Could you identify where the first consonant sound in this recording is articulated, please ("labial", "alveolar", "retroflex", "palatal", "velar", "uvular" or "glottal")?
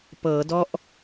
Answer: labial